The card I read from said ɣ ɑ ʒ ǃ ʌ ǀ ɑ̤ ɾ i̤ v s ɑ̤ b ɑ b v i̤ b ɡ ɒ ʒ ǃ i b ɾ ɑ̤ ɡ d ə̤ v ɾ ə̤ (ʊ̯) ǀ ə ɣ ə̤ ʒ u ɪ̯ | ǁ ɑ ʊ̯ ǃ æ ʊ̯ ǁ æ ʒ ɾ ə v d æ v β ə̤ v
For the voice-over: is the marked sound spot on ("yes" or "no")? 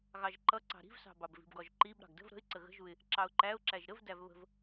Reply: no